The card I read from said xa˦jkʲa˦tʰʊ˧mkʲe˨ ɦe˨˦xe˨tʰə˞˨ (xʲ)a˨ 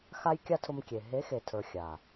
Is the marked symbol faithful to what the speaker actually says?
yes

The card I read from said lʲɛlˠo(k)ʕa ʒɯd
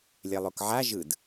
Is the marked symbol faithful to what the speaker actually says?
yes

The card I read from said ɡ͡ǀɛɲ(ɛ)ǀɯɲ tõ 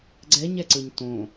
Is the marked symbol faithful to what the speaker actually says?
yes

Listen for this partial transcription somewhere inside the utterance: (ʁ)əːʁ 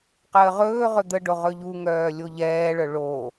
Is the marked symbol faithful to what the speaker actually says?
no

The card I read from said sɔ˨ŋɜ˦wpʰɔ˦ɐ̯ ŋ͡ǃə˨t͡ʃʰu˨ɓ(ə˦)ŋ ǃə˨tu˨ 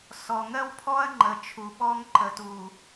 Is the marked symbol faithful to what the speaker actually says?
no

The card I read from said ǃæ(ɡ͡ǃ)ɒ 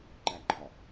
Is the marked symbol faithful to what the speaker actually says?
yes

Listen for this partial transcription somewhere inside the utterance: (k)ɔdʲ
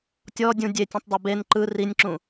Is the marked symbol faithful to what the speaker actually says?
no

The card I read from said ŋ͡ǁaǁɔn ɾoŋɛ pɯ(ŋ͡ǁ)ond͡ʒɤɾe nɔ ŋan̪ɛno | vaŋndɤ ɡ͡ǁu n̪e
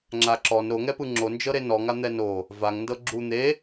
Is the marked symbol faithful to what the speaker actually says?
yes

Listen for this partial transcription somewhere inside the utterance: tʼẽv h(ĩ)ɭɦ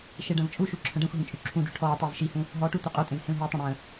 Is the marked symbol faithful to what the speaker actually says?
no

